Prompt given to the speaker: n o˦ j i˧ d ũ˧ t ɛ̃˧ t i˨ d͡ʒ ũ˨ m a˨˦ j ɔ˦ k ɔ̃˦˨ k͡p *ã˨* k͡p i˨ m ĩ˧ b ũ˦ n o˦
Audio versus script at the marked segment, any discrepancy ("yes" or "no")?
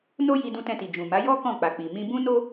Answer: yes